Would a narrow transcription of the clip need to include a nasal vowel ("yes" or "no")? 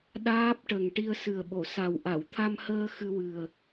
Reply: no